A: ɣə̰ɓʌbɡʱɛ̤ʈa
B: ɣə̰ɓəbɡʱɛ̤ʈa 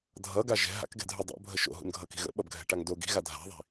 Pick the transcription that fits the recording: A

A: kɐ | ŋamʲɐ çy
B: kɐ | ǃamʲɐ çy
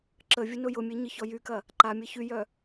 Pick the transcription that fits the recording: B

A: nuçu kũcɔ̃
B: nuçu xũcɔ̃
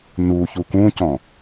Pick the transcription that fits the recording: A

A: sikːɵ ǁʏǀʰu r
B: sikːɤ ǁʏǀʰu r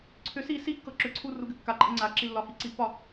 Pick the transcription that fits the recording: B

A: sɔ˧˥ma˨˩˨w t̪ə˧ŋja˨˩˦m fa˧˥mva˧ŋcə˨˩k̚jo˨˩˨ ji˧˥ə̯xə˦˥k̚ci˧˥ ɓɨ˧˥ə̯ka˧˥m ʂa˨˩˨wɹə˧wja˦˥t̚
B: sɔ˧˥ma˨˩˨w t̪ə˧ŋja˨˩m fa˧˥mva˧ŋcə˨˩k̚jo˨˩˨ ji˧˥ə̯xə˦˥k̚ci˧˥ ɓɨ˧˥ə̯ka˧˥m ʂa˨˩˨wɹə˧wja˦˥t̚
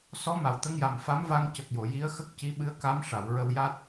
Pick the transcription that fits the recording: B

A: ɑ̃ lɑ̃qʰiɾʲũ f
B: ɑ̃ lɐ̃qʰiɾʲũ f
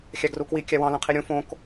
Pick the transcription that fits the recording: B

